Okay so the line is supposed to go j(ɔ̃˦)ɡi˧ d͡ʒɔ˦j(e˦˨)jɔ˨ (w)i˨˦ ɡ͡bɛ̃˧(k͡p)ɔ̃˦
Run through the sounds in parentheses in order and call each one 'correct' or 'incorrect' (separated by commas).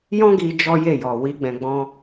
correct, correct, correct, incorrect